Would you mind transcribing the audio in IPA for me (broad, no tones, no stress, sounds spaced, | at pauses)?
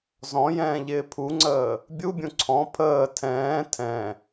z ɔ̃ j ɛ̃ː ʎ ɪː pʰ u ŋ͡ǀ əː | bʲ u bʲ ũ ǀʰ ɔ̃ pʰ əː tʰ ɛ̃ː tʰ ɛ̃